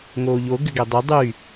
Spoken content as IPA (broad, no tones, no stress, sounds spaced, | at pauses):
ŋ oː ʎ o ɡ ʏ ɡ ɛ dˤ ʏ dˤ y